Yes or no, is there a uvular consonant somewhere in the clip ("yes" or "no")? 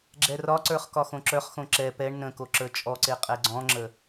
yes